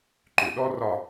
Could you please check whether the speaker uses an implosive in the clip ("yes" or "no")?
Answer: yes